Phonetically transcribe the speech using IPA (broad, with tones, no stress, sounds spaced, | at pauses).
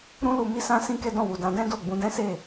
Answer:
ɾ ũ˦ l u˧ m i˦ s ã˦ s ĩ˦ k ɛ˦ d ɔ̃˦˨ w u˨ d ã˧ d ɛ̃˦ d o˦˨ ɡ͡b ũ˧ d ɛ̃˦ s e˦˨